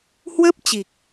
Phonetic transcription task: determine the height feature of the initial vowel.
mid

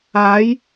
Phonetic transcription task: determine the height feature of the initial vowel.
low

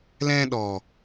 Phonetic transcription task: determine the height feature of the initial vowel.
mid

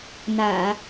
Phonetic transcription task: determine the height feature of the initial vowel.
low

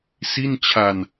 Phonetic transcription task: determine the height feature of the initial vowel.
high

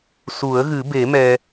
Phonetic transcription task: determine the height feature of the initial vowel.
high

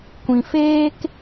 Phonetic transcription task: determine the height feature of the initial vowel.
high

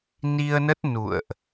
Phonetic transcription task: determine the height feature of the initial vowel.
high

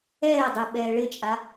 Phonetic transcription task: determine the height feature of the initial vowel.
mid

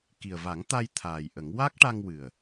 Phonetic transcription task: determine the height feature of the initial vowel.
high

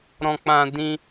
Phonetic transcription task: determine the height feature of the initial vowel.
mid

